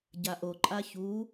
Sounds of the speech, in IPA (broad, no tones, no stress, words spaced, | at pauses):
ɟaʔoǃʼa çu